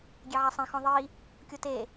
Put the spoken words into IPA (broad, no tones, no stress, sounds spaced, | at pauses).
ɡʲ e ʕ a sˤ ẽ x ɔ̃ ðˤ i | kʲ o t e